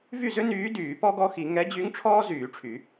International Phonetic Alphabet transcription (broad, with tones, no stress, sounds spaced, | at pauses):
v y˥˩ z ø˥ n yː˧˥ d yː˨˩˦ p ɔ˥ ɡ ɔ˧˥ x i˨˩˦ ŋ ɛ˧˥ d͡ʑ y˧˥ ŋ ʈ͡ʂʰ ɔː˥ z yː˨˩˦ ʈ͡ʂʰ y˨˩˦